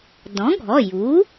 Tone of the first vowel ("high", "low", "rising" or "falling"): rising